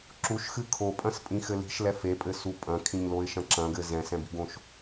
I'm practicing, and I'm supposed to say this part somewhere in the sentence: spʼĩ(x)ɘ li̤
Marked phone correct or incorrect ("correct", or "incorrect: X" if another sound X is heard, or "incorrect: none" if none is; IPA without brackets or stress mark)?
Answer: correct